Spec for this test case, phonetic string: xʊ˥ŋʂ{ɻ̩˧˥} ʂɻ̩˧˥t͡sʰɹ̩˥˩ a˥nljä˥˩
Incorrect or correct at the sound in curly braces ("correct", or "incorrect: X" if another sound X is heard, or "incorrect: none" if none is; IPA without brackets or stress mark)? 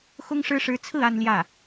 incorrect: ɻ̩˥